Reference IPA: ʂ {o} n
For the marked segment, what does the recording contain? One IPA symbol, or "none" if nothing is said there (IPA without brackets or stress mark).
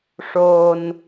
o